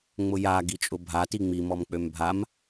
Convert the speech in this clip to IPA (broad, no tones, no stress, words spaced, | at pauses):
ŋ͡mʊja ɡit͡ʃʼʊbʱati ŋ͡mimɔmk͡pøm bʱam